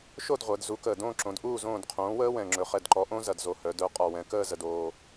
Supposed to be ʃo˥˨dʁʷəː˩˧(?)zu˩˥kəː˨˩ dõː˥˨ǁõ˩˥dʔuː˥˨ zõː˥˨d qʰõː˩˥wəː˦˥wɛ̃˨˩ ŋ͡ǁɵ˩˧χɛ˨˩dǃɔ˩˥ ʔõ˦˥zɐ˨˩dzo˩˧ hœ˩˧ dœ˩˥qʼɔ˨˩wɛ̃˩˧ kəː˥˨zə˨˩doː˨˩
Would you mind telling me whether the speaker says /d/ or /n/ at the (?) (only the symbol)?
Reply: d